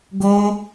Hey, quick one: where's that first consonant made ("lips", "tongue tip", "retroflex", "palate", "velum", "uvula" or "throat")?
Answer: velum